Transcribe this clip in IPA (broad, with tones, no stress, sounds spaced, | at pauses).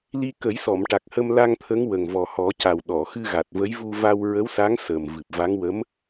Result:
l i˧ k ə˨˩˦ j s ɔ˨˩˨ m ʈ a˨˩ k̚ h ə˧ m l a˧ ŋ t̪ʰ ə˧˥ ŋ w ə˨˩ ŋ v ɔ˨˩ h ɔ˨˩˦ c a˨˩ w ɗ ɔ˨˩˨ x ɨ˧ ɣ a˨˩ t̚ v ə˧˥ j v u˧ v a˧ w ɹ ə˧˥ w s a˧˥ ŋ s əː˨˩ m v ɨ˨˩ p̚ v a˧˥ ŋ w ə˧˥ m